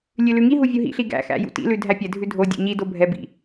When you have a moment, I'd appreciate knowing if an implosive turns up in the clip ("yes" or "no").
no